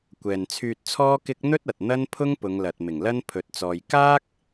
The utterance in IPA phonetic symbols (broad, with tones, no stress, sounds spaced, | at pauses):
kʷ ɛː˨ n t͡sʰ yː˧ t̚ t͡sʰ ɔː˥ k ɪ˥ k̚ n̪ ɵ˥ t̚ ɐ˨ t̚ n̪ ɐ˥ n pʰ ʊ˥ ŋ p ʊ˨˧ ŋ l ɐ˨ t̚ m ɪ˨˩ ŋ l ɐ˥ n pʰ ɵ˧ t̚ t͡s ɔː˧ j k aː˥ k̚